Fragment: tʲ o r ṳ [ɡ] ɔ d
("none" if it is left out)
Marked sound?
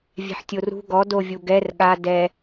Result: ɡ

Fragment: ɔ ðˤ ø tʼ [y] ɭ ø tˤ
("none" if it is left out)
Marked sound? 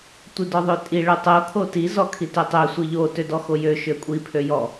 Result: i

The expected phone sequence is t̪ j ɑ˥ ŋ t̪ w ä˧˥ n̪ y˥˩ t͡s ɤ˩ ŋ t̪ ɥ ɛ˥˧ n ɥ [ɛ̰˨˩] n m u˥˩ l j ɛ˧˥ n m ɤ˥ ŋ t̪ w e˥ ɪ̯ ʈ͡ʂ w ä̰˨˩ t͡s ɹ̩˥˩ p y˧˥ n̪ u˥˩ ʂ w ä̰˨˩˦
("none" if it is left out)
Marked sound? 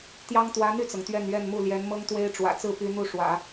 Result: ɛ˥˧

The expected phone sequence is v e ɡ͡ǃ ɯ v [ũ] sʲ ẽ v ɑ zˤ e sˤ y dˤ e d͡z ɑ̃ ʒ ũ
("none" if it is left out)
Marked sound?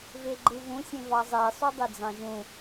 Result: ũ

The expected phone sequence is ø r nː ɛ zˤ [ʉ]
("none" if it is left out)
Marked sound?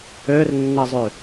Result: ʉ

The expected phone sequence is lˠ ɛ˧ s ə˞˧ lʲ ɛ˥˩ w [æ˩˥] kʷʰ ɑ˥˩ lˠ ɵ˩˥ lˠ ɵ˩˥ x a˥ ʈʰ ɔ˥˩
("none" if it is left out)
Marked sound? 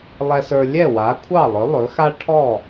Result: a˩˥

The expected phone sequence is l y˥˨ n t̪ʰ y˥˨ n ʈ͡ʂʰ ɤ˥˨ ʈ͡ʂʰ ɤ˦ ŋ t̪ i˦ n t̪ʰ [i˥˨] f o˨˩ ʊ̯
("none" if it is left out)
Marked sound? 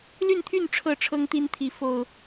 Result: i˨˦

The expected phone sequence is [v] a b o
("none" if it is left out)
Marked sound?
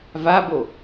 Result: v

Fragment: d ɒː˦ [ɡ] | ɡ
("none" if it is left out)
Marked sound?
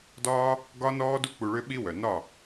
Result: none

